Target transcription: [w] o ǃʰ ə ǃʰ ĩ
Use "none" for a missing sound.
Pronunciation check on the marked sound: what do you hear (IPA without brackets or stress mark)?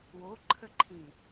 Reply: w